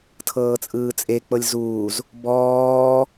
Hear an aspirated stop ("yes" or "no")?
yes